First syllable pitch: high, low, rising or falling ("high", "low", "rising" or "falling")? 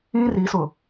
high